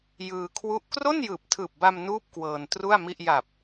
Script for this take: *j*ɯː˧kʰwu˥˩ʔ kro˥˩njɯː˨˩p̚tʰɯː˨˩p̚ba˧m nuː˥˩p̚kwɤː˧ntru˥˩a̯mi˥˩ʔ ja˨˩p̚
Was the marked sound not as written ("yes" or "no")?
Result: no